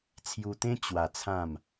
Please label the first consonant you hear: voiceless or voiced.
voiceless